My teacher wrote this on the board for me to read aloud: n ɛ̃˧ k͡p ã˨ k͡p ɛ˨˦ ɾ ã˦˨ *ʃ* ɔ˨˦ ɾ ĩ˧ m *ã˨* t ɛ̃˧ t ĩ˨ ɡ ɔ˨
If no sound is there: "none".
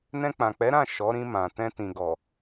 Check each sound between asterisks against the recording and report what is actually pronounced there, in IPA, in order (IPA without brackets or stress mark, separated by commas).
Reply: ʃ, ã˨